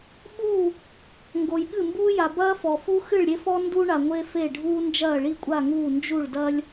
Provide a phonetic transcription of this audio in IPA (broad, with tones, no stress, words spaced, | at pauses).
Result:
ɓu˦˨ | ŋɡo˨jɠɨ˦˨mbuː˦ ja˨bɐː˦fɔ˨fu˦ xɨ˦˨ɭɾʲe˦fɔ˦ ndu˦ɳa˨ ŋʷe˦fe˦˨ɖʱuː˦ nd͡ʒɐː˦˨ɭi˦˨kʷʼa˦˨ŋuː˦˨ nd͡ʒu˦˨ɭdɐ˦lʲ